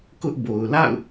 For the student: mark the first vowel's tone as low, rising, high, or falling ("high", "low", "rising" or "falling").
high